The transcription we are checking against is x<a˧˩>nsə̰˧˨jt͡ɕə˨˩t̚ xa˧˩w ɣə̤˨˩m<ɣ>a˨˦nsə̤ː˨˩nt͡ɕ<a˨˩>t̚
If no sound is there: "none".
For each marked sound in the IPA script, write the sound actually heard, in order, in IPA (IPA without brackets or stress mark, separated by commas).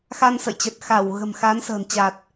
a˧, x, a˨˩